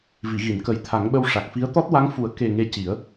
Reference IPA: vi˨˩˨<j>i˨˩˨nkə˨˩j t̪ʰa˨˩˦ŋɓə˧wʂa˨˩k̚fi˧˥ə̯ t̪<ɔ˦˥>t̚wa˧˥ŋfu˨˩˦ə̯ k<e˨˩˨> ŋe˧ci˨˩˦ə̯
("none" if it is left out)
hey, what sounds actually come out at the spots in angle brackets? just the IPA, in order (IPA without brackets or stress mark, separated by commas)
ɣ, ɔ˦˥, e˨˩